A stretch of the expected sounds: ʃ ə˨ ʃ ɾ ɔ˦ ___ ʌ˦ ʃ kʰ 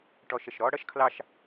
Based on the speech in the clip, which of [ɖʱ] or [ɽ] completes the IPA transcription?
ɽ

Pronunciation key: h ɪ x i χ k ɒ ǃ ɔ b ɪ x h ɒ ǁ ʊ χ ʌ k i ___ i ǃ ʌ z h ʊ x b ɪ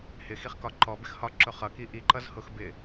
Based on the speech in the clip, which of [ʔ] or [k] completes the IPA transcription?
ʔ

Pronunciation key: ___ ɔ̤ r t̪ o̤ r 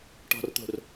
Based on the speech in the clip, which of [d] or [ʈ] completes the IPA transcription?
ʈ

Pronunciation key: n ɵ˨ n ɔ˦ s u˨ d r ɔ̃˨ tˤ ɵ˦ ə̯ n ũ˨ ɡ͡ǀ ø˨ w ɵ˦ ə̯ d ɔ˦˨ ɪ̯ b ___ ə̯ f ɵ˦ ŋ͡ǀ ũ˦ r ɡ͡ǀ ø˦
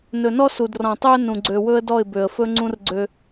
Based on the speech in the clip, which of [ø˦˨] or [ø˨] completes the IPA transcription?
ø˨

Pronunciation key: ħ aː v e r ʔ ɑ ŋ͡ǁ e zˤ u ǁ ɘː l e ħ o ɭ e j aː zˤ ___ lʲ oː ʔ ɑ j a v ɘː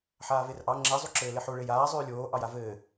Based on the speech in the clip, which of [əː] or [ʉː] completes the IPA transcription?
ʉː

